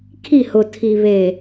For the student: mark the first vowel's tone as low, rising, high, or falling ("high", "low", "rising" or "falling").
falling